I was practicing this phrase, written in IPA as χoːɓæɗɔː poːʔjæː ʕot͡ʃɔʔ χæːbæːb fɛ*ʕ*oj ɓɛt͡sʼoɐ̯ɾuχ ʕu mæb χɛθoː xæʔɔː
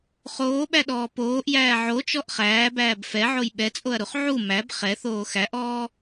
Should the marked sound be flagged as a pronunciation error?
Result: no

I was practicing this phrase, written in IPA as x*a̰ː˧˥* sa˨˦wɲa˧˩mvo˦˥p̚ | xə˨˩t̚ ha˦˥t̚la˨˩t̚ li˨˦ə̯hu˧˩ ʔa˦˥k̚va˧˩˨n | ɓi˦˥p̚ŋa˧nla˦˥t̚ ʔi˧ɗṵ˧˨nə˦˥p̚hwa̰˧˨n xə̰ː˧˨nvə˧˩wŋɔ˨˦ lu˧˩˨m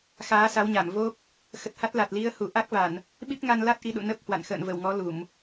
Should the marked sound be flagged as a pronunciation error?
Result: yes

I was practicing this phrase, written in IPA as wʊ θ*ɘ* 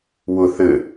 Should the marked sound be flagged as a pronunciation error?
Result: no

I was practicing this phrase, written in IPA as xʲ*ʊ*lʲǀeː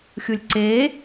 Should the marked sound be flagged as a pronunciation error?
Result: yes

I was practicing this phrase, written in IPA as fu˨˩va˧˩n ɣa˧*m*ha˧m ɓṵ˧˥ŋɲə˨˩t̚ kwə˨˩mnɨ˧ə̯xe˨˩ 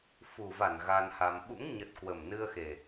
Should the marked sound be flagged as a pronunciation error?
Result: yes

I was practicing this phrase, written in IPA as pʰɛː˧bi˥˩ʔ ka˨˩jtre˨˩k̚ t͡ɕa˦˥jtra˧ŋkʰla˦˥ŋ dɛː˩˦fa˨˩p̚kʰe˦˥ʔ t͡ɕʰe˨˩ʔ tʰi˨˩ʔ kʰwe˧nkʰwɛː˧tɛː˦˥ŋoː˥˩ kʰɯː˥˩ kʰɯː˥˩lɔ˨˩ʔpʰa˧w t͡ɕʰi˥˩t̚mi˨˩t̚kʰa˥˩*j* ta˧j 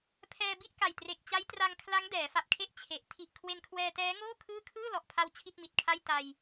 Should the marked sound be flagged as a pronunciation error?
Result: no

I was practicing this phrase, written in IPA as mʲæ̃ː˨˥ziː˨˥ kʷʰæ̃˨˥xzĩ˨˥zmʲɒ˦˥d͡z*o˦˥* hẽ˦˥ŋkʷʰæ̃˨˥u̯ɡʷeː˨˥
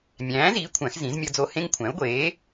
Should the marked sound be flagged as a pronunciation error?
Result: no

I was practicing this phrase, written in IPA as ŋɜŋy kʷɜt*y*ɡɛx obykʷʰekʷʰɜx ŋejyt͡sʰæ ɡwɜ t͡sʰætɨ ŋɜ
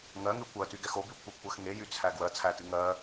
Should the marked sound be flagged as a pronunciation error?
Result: no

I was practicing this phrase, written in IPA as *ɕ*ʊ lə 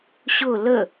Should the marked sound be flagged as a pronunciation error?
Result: no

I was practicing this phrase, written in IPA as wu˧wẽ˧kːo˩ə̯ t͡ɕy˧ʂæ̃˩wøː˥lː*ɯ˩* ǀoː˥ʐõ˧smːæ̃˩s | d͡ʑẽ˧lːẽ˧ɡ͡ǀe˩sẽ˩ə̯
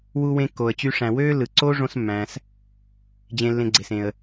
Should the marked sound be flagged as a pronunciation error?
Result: no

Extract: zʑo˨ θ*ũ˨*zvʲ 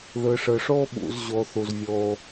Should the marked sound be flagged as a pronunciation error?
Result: yes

